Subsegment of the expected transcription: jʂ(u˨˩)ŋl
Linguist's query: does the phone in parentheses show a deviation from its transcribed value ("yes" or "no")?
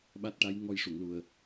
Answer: yes